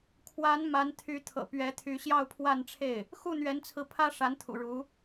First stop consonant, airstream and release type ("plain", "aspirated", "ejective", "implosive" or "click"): aspirated